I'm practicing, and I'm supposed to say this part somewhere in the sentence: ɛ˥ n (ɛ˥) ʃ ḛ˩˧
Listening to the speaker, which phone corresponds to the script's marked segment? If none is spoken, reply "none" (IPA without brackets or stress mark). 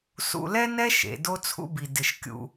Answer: ɛ˥